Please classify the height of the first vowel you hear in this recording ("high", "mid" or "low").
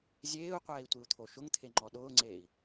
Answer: mid